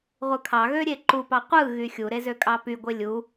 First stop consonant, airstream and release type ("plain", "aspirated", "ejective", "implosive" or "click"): aspirated